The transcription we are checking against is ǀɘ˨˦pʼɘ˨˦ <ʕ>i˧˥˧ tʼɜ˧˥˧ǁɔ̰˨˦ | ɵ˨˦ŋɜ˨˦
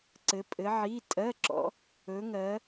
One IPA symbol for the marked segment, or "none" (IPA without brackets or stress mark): ʕ